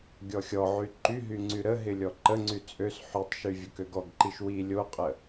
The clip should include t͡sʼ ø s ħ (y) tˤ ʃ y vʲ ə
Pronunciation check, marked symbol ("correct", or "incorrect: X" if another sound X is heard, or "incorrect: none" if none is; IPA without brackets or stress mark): correct